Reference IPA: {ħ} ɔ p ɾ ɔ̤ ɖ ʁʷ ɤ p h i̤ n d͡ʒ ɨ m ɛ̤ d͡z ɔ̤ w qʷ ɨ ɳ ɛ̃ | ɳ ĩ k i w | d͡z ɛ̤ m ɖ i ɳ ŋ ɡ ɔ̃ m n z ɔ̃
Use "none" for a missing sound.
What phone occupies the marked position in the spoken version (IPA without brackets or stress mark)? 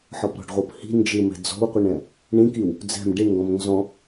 ħ